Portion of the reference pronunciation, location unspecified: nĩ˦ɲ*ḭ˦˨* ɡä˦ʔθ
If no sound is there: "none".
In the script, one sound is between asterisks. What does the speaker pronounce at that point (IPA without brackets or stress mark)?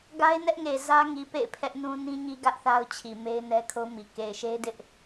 i˦